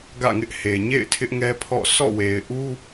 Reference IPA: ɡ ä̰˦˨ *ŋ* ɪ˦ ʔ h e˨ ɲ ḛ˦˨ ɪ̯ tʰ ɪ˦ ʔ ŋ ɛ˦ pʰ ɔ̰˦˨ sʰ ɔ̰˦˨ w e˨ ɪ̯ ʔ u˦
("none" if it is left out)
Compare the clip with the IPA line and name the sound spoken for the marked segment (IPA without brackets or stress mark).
ŋ